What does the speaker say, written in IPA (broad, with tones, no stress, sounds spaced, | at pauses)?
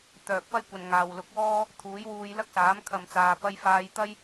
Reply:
t̪ œː˨ k̚ p ɐ˥ j kʷ ɐ˨ n ŋ aː˨ w l ʊ˨˥ k̚ w ɔː˥ | t̪ʰ uː˨˥ j w uː˧ j l ɐ˥ k̚ s aː˨˥ m kʰ ɐ˨ m t͡s aː˨ p ɐ˧ j f aː˧ j t̪ ɐ˥ j